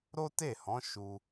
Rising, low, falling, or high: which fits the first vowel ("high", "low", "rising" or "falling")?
high